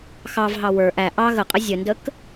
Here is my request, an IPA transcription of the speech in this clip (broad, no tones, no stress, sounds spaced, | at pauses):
x ɑ v ɦ ɑ w ə˞ ʔ æ ʔ ɑ ɣ ə qʼ ɘ zʲ ə n d ə k